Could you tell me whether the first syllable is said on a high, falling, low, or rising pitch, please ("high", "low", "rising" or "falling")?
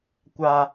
high